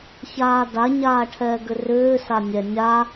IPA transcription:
ç aː d a ɲ aː ʈʰ ɛː ɡ ʏ r ʏː s a nʲ ɛ nʲ a

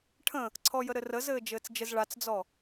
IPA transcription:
ʈʰ ə̃ | ǀʰ ɔ j ə ɾ ɘ r ə z ɘː d͡ʒ ɘː t͡s d͡ʒ ɘ z ɭ a t͡s d͡z ɔ

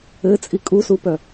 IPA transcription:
ɘ t͡sʼ i kʼ u s u p œ

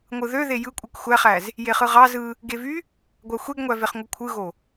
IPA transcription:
ŋʷ ɯ ð ø ð e j ɯ kʷʼ ɯ k xʷ æ χ æ z | j e χ ɯ ʁ ɑ z ɯ | ɡ e v y | ɡʷ ɑ xʷ e ɡ ŋʷ æ v e χ ŋʷ ɯ kʷʰ ɯ ɣ o

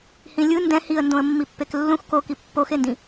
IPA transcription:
h ĩ lʲ ɯ n d ɛ̃ h i ə̯ n d õ ə̯ mː i pː e k lː ũ x k o k i pː o x e n d ĩ

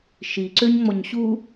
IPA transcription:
ʃ i ǀ ø ɲ ŋ͡m ɔ ɲ ɕ u

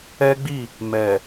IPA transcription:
ɛ˦ ɡ͡b i˦˨ | m ɛ˨

